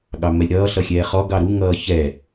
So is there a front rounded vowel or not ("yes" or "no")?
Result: no